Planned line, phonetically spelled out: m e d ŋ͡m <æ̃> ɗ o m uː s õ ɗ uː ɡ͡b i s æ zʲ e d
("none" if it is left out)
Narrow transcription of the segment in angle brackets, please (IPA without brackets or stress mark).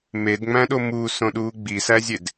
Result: æ̃